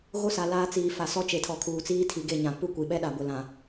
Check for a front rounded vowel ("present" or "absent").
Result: absent